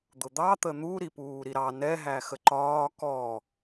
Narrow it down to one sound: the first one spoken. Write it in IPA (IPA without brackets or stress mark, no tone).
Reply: d̪